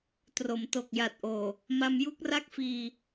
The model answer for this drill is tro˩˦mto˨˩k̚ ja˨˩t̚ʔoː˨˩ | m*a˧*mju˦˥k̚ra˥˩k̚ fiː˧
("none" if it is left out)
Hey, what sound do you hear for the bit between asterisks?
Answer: a˧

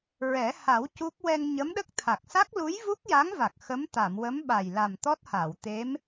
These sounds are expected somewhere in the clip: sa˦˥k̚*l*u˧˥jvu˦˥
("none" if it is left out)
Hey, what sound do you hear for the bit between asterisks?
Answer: l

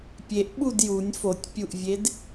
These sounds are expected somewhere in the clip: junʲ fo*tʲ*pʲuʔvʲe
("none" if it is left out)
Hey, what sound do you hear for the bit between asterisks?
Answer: tʲ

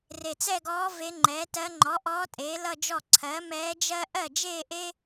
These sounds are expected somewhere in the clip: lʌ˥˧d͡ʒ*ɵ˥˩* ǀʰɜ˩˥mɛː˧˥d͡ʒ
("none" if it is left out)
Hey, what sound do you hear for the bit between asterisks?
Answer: ɔ˥˩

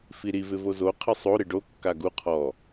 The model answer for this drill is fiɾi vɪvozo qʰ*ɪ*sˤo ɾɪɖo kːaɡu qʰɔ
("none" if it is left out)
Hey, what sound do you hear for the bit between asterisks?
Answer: ɪ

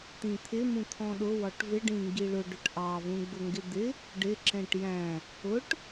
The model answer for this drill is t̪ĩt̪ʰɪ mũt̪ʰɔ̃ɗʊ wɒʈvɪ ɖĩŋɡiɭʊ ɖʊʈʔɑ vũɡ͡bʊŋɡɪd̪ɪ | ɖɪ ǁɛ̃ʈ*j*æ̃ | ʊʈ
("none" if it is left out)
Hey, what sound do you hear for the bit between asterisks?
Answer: j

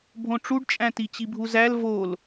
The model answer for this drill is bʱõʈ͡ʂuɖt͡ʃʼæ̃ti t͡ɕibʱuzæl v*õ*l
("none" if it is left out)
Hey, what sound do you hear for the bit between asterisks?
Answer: o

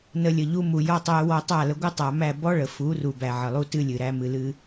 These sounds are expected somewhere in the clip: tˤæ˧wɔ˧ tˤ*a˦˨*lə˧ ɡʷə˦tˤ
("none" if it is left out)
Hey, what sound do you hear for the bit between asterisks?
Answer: a˦˨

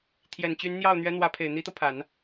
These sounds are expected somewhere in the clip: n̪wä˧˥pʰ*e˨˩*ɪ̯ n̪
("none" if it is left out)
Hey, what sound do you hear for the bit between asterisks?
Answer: e˨˩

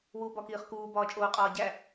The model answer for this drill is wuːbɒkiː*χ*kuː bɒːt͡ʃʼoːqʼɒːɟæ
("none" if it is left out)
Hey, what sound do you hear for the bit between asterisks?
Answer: χ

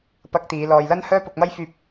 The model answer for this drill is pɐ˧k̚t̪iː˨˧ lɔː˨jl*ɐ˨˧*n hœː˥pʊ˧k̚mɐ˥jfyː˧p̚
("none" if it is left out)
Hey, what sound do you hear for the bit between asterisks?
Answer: ɐ˥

